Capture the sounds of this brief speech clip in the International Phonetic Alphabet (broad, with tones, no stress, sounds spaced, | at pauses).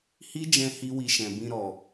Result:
h i˦ d͡ʒ ɛ̃˧ h i˦ w i˧ ʃ ɛ̃˨ b ĩ˧ ɾ ɔ˨